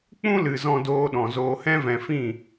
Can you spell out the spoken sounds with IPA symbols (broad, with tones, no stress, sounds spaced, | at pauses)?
k͡p ũ˦ l ɨ˨ z ɔ̃˧ d oː˧ ɗ ɔ̃˨ z oː˨ h ɛ̃˧ v ɛ̃˨ f ĩ˦˨